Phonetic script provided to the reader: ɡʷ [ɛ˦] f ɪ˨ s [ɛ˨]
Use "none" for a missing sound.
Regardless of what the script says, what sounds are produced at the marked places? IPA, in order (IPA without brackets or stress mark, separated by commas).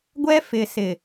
ɛ˦, ɪ˨